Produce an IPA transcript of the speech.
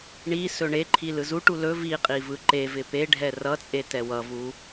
ɳ i s ɵ ɳ e ǃʰ i l ɯ z u ʈ u l ɵ v i qʼ i v ɯ ǃ e v ɪ p e ɖʱ ɛ r ʌ t͡sʼ e t ɛ w ʌ v u

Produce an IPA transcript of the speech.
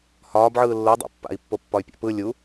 h ɒː b ʕ ɯː lː ʊ dˤ o̰ pː a̰ i̯ pː o pː ɒ y̯ pʲ a̰ p ɯ lʲ u

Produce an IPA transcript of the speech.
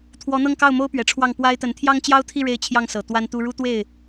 t̪ʰ w ɔ˧˥ n̪ ɤ˥˧ ŋ k ɑ˥˩ ʊ̯ m o˥ ʊ̯ p ɥ ɛ˨˩ ʈ͡ʂʰ w ɑ˥˩ ŋ p w a˥ ɪ̯ t̪ ə˧˥ n t̪ʰ j ɑ˥ ŋ t͡ɕ j ɑ˥ ʊ̯ t̪ʰ i˥˧ ɻ e˥˧ ɪ̯ t͡ɕʰ j ɑ˥˩ ŋ s ɤ˨˩ t̪ w a˥ n t̪ u˥ ɻ u˥ t̪ w e˥˩ ɪ̯

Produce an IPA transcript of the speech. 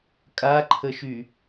kʼ a ǃʰ ə ʃ y

